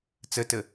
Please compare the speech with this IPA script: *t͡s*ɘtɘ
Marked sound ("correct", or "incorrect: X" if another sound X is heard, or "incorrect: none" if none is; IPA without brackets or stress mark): correct